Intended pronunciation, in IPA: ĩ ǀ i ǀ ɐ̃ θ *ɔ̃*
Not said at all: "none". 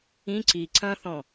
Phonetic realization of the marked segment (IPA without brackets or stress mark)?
ɔ̃